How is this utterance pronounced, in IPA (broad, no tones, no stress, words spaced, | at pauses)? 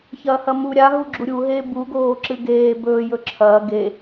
çɐːhɐmu ɾʲaɦuɡ͡ǁu ɾʲuɦeː buɡoː ǁɨɡeː bɵː jɵǁʰɐː ɡe